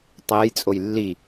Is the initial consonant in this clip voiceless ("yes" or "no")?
yes